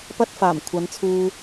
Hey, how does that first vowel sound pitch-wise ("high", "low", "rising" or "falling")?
high